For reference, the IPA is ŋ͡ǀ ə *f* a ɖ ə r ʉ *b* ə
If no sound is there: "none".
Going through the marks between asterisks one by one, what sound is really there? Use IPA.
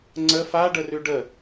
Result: f, ɖ

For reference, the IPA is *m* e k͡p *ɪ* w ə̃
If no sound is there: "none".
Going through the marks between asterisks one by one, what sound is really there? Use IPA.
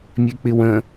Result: mʲ, ɪ

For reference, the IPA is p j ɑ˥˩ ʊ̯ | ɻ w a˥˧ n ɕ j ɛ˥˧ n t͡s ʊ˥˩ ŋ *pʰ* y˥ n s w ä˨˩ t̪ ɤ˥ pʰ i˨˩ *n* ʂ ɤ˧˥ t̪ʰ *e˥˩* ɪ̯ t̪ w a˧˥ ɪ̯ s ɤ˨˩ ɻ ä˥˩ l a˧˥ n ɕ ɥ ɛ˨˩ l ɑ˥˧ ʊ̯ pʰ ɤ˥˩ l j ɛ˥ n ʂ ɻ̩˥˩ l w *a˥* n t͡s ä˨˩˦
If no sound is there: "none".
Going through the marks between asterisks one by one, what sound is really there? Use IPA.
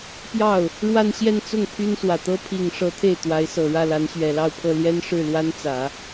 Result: pʰ, ŋ, e˥˩, a˥

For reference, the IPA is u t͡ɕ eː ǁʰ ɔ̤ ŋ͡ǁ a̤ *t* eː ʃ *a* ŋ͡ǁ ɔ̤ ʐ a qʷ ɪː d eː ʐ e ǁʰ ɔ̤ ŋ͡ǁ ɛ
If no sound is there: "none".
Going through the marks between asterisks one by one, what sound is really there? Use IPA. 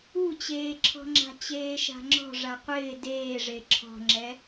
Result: t͡ɕ, a̤

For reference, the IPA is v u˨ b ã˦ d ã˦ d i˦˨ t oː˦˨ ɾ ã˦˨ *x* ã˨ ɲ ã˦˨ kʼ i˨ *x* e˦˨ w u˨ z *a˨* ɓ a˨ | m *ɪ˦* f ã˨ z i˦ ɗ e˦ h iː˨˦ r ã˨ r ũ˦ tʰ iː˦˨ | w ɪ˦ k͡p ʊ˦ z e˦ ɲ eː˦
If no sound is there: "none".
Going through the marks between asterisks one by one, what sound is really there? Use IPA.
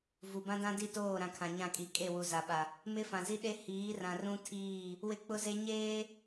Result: kʰ, kʼ, a˨, ɪ˦

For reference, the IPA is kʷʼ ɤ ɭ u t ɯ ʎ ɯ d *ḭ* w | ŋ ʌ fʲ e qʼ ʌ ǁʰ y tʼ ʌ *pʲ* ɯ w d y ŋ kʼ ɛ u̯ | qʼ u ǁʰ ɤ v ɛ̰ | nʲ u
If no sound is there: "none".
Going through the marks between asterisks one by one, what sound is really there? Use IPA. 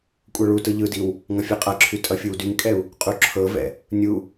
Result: i, fʲ

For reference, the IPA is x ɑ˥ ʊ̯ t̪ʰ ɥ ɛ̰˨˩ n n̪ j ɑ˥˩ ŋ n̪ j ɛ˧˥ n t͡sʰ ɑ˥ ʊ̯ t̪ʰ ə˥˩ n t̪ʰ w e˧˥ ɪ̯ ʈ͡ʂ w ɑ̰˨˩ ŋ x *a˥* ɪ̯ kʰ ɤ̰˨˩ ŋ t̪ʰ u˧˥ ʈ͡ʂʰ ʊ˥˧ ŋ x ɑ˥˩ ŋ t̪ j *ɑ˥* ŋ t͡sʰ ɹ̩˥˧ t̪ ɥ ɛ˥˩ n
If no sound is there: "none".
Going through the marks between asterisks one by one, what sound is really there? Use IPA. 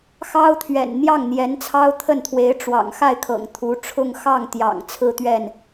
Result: a˥˩, ɑ̰˨˩

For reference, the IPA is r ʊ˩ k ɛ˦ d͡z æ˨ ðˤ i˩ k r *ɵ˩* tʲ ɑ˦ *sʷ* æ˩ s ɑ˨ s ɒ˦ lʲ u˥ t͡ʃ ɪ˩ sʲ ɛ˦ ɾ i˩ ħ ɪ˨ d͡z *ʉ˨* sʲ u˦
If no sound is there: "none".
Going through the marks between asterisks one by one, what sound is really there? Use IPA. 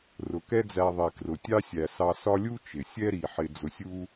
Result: ʊ˩, sʲ, ʊ˨

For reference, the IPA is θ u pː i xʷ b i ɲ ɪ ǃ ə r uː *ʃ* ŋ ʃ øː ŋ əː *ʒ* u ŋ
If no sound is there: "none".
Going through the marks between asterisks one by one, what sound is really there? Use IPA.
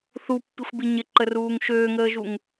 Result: none, ʒ

